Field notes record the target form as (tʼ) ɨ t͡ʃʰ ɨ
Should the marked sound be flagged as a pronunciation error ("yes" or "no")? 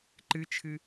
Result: yes